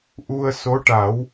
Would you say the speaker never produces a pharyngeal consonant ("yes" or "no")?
yes